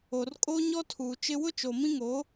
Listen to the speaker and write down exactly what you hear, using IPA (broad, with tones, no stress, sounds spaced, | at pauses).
o˨ r kʼ o˦ ɲ ɔ˦ tʰ uː˨ t͡ʃ ɪ˦ w ʊ˦ t͡ʃ o˨ m ĩ˦ ŋ o˨˦